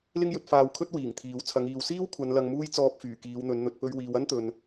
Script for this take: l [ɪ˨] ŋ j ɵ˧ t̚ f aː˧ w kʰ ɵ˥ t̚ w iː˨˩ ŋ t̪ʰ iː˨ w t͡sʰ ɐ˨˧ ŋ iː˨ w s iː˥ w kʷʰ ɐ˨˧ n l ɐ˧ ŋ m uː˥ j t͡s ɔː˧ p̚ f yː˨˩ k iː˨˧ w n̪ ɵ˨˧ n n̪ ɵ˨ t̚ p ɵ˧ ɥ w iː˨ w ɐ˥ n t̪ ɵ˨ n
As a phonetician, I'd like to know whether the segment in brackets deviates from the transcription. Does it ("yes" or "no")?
yes